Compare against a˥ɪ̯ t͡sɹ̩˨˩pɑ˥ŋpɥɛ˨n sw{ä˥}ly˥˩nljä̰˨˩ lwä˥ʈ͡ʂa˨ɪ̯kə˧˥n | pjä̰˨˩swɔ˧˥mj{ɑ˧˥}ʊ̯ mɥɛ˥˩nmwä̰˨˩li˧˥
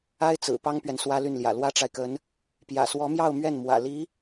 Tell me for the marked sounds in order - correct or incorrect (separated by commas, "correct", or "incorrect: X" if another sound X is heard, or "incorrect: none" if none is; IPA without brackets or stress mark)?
correct, incorrect: ɑ˥˧